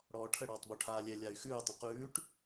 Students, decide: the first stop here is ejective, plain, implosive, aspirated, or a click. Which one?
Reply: aspirated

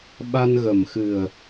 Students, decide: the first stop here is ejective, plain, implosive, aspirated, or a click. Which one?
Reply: implosive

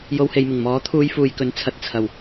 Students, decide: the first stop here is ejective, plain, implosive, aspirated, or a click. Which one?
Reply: aspirated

